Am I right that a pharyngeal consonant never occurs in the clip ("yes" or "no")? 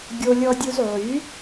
no